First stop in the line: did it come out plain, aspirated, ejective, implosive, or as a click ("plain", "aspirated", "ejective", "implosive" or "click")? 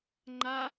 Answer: click